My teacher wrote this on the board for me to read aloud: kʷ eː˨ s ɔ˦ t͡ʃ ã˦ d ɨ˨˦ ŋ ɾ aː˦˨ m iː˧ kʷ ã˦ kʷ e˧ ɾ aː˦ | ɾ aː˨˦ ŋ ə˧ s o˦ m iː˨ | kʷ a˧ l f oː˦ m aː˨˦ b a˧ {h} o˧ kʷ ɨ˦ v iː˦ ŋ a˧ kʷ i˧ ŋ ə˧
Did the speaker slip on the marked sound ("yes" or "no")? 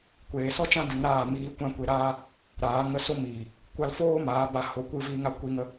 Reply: no